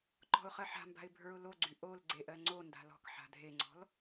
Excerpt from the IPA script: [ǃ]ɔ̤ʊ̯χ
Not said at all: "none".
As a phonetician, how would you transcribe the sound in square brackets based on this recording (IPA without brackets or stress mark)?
ǃ